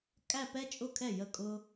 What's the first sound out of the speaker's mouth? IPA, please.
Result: kʼ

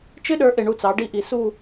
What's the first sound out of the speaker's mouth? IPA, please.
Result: t͡ʃ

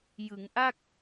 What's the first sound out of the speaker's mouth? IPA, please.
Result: j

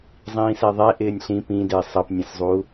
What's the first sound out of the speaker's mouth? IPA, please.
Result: zˤ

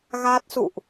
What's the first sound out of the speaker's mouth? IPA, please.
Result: ɣ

